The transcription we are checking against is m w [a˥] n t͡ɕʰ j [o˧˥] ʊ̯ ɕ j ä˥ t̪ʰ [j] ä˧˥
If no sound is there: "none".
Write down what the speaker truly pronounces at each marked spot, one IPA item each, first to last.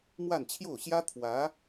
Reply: a˥˧, o˥˩, w

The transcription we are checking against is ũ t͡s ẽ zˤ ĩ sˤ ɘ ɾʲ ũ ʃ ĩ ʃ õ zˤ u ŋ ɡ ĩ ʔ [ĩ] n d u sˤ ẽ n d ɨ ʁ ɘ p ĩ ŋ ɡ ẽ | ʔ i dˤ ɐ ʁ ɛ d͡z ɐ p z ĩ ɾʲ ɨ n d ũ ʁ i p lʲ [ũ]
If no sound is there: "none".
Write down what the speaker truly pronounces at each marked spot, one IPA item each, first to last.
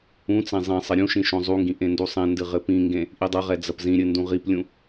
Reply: ẽ, ũ

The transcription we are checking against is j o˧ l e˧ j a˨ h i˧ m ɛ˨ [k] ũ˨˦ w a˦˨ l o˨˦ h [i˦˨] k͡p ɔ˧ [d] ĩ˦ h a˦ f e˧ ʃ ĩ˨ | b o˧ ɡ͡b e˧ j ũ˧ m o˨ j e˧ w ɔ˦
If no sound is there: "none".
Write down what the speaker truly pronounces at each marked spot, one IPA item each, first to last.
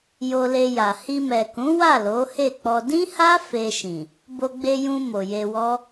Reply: k, e˦˨, d

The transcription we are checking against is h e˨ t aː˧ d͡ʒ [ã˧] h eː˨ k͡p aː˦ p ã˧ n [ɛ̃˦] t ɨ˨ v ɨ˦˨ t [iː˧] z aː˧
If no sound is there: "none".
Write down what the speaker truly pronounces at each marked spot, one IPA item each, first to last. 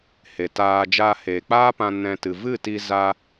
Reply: a˧, ɛ̃˧, i˧

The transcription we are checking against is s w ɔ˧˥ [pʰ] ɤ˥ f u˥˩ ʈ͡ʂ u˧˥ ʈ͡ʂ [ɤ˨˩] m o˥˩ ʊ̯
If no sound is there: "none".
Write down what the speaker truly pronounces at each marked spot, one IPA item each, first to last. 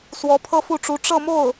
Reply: pʰ, ɤ˥˧

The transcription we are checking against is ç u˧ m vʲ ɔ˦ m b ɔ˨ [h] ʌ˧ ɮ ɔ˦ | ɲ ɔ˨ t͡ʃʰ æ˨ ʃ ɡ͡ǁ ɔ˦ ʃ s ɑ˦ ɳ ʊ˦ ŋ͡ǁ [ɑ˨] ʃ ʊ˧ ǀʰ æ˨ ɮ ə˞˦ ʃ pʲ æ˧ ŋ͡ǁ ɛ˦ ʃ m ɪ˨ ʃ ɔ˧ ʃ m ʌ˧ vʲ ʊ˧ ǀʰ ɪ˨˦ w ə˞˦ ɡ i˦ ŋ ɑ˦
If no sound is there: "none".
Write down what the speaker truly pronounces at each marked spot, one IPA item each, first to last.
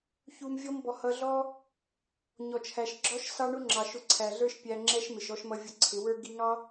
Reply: h, ɑ˨

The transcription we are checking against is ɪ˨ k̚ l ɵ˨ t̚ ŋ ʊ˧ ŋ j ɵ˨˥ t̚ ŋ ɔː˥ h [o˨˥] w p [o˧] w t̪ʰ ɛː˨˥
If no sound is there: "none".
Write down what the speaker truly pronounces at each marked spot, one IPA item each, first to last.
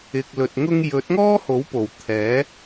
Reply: o˨˥, o˨˩

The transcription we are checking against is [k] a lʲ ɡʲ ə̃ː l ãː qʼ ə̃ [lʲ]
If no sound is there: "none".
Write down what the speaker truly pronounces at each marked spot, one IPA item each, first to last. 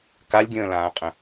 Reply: k, none

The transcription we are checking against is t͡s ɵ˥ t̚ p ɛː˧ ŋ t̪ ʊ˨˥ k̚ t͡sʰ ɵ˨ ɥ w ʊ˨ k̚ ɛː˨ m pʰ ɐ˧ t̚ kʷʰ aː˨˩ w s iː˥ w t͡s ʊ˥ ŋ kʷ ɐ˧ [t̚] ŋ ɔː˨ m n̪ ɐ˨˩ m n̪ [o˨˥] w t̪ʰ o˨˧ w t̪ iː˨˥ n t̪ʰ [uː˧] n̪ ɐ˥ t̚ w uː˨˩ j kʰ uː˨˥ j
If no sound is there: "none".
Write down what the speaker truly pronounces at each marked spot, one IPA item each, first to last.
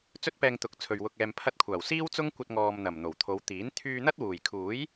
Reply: t̚, o˨˩, yː˧

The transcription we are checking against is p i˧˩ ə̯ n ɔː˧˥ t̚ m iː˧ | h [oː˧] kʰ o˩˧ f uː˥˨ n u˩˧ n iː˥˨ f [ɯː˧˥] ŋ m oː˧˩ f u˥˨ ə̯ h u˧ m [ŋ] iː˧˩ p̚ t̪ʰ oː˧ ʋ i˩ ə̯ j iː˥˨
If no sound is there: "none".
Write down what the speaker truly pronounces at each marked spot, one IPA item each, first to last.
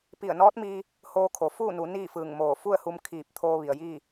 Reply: oː˧, ɯː˧˩, kʰ

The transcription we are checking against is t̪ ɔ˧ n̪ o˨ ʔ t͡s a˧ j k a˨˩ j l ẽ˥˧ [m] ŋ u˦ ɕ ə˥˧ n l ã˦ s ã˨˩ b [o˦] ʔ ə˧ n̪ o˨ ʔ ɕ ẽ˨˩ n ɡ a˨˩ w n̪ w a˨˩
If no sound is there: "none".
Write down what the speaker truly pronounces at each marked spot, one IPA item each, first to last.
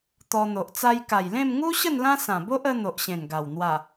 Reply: m, o˦

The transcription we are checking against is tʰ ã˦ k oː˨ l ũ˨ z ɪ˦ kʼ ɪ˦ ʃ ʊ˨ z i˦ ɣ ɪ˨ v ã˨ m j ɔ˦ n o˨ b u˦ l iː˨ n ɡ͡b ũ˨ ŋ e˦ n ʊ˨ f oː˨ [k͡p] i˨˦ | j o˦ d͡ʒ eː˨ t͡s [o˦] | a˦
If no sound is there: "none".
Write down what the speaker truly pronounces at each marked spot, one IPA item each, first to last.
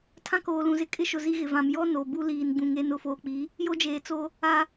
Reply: k͡p, o˦

